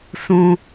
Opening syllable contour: low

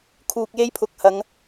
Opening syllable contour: low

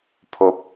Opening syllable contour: low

